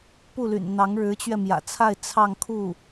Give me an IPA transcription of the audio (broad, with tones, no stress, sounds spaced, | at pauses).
p u˥˩ l y̰˨˩ n n̪ ɑ˧˥ ŋ ɻ ɻ̩˧˥ t͡ɕ ɥ ɛ˧ m j ä̰˨˩ t͡sʰ a˥˧ ɪ̯ t͡sʰ ɑ˥˧ ŋ kʰ u˥˩